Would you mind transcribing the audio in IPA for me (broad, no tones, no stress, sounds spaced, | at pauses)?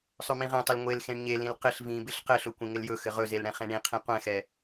sˤ ɵ m ĩ ʁ ɛ̃ tˤ ɵ l ŋʷ e l x ẽ ɳ ɲ e l ĩ l q ɪ ɬ v ĩ b ɪ ɬ q ɘ ɬ ɵ kʷ ẽ ŋ ɪ l j ɵ x ɘ ʁ ɵ z e l ɽ ɛ̃ χ ẽ ɳ ĩ qʰ ĩ qʷ ɛ̃ x ɛ